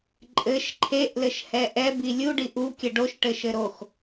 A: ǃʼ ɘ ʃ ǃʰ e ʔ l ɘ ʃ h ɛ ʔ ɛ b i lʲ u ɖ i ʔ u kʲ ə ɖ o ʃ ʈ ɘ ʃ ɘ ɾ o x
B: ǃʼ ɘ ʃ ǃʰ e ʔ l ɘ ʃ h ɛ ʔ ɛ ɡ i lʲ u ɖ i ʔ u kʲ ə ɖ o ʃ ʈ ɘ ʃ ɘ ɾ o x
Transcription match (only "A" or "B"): A